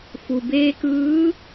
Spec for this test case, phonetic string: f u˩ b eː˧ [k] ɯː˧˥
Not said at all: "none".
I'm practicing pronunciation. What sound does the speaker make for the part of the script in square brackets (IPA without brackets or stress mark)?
k